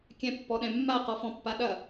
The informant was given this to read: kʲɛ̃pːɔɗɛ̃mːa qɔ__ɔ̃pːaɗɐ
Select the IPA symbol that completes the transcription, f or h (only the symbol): f